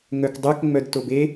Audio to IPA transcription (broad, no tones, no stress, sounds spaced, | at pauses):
ŋ œ k dˤ œ k ŋ͡m œ d t o b e